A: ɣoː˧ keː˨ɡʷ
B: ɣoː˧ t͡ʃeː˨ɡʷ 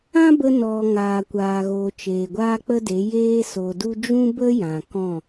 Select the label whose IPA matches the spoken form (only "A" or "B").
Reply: B